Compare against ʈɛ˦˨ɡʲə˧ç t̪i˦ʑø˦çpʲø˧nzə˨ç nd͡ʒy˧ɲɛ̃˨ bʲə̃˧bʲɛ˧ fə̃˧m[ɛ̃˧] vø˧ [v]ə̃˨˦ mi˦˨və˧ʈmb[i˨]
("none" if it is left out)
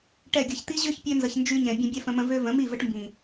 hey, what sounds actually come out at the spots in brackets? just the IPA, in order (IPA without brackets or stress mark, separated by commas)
ə̃˧, v, ĩ˨